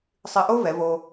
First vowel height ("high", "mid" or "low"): high